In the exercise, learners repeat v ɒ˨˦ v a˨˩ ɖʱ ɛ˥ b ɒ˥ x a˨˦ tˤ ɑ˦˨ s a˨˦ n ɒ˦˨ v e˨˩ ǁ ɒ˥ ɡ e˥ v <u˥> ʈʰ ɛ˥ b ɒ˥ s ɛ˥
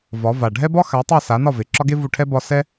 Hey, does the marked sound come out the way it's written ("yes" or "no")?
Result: no